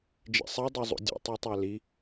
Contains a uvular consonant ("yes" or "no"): no